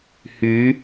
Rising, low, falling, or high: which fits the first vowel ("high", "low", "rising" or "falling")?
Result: rising